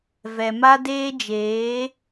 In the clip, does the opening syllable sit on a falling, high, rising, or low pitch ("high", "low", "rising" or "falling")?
low